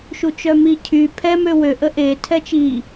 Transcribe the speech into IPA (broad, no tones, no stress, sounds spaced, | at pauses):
ʃ u t͡ʃ œ m i cʰ y pʰ ɛ m ø w ø ʔ ə ʔ e tʰ ɛ t͡ʃ i